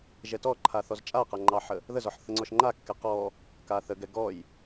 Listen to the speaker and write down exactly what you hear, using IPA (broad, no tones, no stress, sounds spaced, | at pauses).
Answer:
ʒ ɛ t ɔ ǃʰ a θ ɔ z t͡ʃʼ a q a ŋ͡ǃ ɑ ħ ə | ð ə z ɔ ħ θ ə ŋ͡ǀ ɔ ʃ ŋ͡ǃ a kː ɛ q ɔ | k a θ ə ɡ ɛ ɡ ɔ j